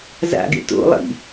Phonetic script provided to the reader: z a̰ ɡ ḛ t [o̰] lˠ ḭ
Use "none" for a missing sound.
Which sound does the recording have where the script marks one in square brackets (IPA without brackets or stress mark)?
o̰